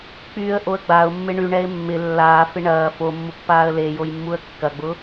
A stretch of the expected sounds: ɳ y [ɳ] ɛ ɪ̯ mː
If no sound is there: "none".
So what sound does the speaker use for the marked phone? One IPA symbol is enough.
ɳ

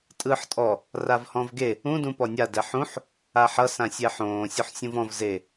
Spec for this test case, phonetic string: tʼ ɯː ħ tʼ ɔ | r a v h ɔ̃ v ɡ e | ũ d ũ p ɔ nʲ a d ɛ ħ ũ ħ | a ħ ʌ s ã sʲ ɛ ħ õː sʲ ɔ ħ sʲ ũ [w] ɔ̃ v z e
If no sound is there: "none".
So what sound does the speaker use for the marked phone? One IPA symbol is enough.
v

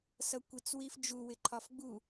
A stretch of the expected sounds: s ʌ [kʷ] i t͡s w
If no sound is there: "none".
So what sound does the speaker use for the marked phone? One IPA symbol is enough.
kʷ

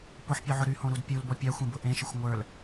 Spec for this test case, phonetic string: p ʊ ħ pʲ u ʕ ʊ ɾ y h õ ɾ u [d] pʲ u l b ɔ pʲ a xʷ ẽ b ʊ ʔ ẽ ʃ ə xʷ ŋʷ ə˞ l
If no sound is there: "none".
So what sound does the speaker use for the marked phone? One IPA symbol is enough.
d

